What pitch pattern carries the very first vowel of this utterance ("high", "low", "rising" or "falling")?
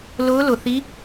rising